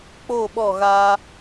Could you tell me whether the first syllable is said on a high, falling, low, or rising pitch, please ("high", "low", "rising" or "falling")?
falling